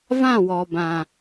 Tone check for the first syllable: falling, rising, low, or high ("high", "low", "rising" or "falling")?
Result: falling